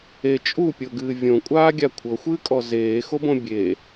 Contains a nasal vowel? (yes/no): yes